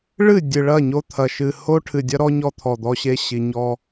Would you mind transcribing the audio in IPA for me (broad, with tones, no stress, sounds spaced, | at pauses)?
ɭ ɨ˦˨ dʲ ɨ˨ ɭ ɐ˦˨ ɲ o˦ t̪ʰ ɐ˨ ʃ ɨ˨ h o˦ ʈʰ ɨ˨ dʲ ɐ˦ ɾ ɔ˦ ɲ ɔ˦ t̪ʰ ɔ˨ d̪ ɔ˦ ɕ e˦ ɕ i˨ ɲ ɔ˦